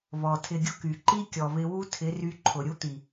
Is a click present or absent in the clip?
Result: present